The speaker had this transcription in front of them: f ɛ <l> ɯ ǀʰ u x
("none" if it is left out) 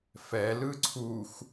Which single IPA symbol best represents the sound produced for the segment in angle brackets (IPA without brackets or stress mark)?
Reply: l